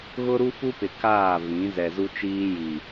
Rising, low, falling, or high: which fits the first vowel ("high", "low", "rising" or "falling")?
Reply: high